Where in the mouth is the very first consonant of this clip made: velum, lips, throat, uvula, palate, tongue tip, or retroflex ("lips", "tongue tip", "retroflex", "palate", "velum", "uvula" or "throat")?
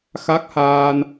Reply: velum